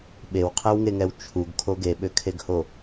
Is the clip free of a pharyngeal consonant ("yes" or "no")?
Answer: yes